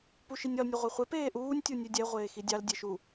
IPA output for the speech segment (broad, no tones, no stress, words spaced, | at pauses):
puʃinʲɒl nʲɒʁʷaχʷe peːʔuːnʲ tʲunʲʉdʲɛ ʁʷeːxidʲɑl dʲeʃu